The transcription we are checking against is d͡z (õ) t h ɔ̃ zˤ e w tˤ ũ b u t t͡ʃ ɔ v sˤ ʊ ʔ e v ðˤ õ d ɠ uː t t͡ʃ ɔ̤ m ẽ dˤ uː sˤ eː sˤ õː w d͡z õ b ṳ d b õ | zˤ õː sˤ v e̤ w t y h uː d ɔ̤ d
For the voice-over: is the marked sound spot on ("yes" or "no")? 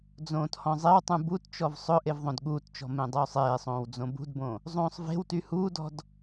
no